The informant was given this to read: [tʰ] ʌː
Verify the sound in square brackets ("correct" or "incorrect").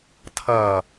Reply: correct